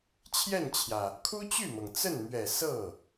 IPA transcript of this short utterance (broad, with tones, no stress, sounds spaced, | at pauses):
t͡ɕʰ j ɛ˥˩ n t͡ɕʰ j ä˩ | kʰ u˥ t͡ɕ y˥˩ m ɤ˩ ŋ t͡s ə˥˩ n m ɥ ɛ˨˩ s ɤ˥˩